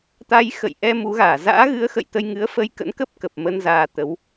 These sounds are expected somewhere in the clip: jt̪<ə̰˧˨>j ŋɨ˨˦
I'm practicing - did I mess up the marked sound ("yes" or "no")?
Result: yes